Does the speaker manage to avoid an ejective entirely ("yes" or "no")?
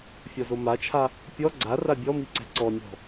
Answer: yes